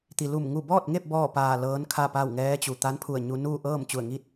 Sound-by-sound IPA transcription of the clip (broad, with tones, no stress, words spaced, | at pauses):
t̪i˩lu˧˩m ŋu˧˩bɔː˥˨t̚ŋe˥˨p̚ bɔː˥˨paː˧˩ lɤː˧˥nkʰa˥˨pa˥˨w ŋɛː˧˥t͡ɕu˩ t̪a˧˥npʰu˧˩ə̯ɲu˧ nuː˥˨ ʔɤː˥˨mt͡ɕu˧˩ə̯ŋiː˥˨t̚